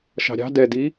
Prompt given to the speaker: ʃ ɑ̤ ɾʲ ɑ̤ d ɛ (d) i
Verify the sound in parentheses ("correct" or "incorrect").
correct